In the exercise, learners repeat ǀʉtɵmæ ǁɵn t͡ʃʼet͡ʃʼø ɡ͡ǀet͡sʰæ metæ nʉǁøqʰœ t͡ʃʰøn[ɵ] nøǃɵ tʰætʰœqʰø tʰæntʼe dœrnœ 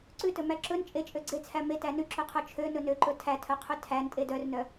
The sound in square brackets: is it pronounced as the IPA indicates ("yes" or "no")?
yes